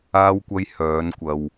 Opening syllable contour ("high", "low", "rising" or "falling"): low